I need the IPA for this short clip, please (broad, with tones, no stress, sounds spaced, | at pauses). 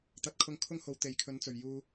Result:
t̪ ɐ˨˥ t̚ kʰ ʊ˧ ŋ kʰ ʊ˥ ŋ h o˨˥ w t̪ e˨ j kʰ ɵ˨˥ n t͡s ɵ˨ ɥ j uː˧